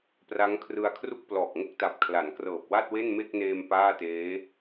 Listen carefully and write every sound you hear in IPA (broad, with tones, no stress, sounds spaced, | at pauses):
p r a˦˥ ŋ kʰ r ɯ˧ a̯ kʰ r u˥˩ k̚ p l ɔː˨˩ k̚ ŋ o˥˩ k̚ t a˨˩ p̚ kʰ l a˩˦ n k r ɤː˨˩ p̚ w a˥˩ t̚ w e˥˩ n m e˥˩ k̚ n eː˧ m p aː˥˩ t eː˦˥